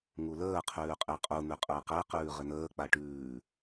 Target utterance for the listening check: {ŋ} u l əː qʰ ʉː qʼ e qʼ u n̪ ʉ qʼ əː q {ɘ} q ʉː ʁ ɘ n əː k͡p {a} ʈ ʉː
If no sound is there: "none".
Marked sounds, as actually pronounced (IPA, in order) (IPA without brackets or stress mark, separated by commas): ŋ, ɛ, a